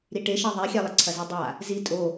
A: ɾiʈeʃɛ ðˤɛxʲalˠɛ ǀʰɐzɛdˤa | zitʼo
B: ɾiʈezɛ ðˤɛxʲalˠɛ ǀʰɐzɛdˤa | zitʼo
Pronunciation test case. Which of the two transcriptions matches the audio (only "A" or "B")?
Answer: A